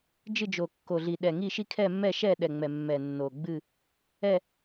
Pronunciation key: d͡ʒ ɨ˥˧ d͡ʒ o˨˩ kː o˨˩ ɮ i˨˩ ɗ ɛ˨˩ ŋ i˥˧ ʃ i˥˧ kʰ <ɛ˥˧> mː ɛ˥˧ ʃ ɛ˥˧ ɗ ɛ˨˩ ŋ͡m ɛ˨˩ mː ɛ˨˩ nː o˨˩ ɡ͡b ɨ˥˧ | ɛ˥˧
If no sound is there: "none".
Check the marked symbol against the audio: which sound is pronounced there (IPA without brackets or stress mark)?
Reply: ɛ˥˧